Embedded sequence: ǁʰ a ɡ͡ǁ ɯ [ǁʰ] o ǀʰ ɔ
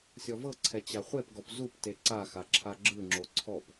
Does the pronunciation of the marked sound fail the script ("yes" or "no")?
yes